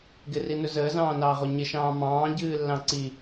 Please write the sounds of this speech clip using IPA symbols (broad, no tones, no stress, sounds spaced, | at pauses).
ɡ ɪ r i n ɵ z əː z ɑ̃ː n ɑː ʁ o ɲ ɪ ʃ ɑ̃ː m ɑ̃ː ɟ ɨː lː ɑ̃ ǀ i